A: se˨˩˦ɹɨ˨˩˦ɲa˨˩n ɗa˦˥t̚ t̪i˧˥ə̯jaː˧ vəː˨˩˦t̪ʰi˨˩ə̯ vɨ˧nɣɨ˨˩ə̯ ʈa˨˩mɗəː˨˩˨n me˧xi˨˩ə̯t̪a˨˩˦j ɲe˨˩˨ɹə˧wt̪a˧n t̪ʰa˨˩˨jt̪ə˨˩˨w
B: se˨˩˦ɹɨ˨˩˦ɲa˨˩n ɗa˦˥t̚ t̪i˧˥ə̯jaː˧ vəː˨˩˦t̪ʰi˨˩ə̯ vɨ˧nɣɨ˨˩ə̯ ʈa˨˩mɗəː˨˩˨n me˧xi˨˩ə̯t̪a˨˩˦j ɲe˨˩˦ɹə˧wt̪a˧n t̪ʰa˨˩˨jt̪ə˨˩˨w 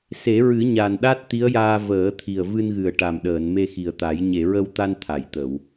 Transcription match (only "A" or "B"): A